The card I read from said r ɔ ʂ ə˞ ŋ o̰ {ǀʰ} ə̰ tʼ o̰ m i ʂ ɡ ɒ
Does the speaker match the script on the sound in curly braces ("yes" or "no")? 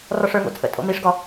no